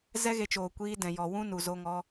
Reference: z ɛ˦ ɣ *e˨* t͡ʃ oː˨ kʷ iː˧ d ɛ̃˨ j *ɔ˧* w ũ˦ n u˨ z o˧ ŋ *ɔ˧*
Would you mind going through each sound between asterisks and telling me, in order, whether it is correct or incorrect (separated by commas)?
incorrect, incorrect, correct